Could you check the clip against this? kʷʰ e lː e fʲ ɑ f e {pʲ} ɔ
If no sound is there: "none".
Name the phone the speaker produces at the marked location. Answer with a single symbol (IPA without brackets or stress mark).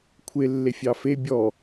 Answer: bʲ